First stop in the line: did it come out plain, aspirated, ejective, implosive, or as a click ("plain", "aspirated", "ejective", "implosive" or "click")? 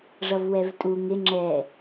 ejective